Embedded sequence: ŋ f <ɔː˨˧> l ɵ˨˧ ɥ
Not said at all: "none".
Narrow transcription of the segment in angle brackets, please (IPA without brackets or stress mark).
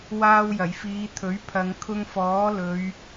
ɔː˨˥